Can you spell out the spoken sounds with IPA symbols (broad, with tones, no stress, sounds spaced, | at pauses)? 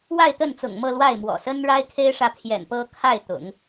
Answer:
w a˥˧ ɪ̯ t̪ ə˥˩ n t͡s ʊ̰˨˩ ŋ m ɤ˥˧ l w a˥˩ ɪ̯ m w ɔ̰˨˩ s ə˥ n ɻ a˥ ɪ̯ kʰ e˥ ɪ̯ ʂ ä˨ pʰ j ɛ̰˨˩ n p ɤ˥ kʰ a˥˩ ɪ̯ t̪ ʊ̰˨˩˦ ŋ